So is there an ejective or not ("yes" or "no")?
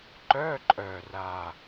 yes